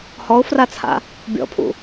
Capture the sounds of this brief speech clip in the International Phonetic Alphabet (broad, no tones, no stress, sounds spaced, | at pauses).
h ɔ ʊ̯ f r a t͡sʰ a̰ | bʲ ɔ̰ pʰ ṵ